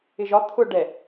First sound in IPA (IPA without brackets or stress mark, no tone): ɪ